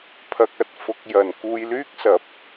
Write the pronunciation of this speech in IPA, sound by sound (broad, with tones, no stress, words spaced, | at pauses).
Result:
pʰɐ˧k̚ɐ˨t̚fʊ˧k̚ jɐ˨nkuː˧j lyː˧k̚sɐ˨˥p̚